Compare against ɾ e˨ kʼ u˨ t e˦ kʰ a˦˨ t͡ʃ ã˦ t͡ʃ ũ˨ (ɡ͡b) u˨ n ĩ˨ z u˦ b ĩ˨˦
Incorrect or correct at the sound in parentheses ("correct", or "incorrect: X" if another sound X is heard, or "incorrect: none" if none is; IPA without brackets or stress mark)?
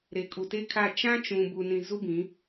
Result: incorrect: b